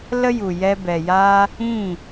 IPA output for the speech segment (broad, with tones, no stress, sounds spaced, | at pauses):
l ə˦ j u˨ j ɛ˧ b ɛ˨ j aː˦ | ĩ˦˨